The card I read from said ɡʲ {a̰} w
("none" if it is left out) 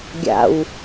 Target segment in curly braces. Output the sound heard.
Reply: a̰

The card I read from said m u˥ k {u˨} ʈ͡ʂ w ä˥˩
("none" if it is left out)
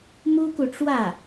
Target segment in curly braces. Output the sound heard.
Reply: u˨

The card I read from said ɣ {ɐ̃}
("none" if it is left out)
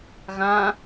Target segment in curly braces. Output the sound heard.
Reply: ɐ̃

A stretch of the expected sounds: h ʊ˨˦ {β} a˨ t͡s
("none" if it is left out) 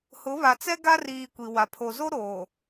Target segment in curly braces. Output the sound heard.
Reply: β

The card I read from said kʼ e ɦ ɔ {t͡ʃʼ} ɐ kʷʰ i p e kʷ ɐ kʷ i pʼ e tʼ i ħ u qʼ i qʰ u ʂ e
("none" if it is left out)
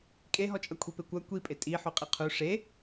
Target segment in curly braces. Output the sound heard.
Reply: t͡ʃʼ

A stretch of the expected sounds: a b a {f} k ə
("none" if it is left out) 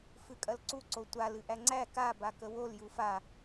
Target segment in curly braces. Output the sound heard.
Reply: none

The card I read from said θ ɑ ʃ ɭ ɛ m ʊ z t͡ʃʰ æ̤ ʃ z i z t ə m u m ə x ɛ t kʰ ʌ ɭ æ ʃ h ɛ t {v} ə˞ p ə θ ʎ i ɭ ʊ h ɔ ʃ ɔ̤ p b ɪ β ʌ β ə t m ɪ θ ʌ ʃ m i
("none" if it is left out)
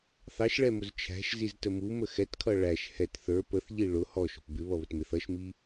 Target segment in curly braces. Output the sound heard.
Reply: θ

